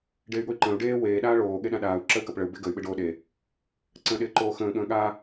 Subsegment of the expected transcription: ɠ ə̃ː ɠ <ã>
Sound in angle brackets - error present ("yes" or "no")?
yes